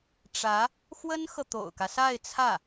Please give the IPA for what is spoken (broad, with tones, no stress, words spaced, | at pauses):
ʈ͡ʂä˧˥ | xwə˥nxɤ˨ t̪o̰˨˩ʊ̯kä˦sa˥˧ɪ̯ t͡sʰä˥˩